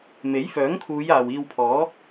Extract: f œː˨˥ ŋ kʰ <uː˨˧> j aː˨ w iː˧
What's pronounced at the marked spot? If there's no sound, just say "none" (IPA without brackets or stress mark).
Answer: uː˨˧